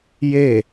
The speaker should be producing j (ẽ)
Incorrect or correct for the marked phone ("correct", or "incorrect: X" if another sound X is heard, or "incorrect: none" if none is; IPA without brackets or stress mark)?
incorrect: e